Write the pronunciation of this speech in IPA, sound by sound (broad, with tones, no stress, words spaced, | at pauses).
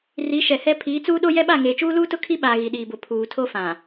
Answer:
ri˨˦ʃɛ˨hɛ˦ pʰiː˨˦t͡suː˦ɗo˦ jɛ˦ɓa˦˨ ŋeː˨t͡ʃuː˦luː˦tʊ˦ kʰi˦ɓaː˨ ɣi˨ɗiː˨bʊ˨ pʰuː˨ tʰo˦fã˨